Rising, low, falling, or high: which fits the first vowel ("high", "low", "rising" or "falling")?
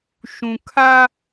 low